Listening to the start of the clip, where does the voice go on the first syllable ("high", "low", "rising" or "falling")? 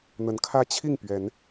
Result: rising